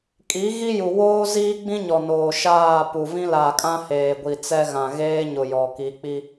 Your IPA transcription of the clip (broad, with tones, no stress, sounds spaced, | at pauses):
kʼ i˨˦ ɣ i˦ j u˨ w oː˦ z iː˦ ɡ͡b ĩ˦ ɲ ɔ˨ n oː˨ ʃ aː˦˨ p u˨ v ĩ˦ l a˨ kʼ ã˦ h eː˨ ɡʷ i˨ t͡s ɛ˦ ɣ ã˨ ɣ eː˦ ɲ ʊ˨ j ɔ˨ k i˨˦ k͡p i˦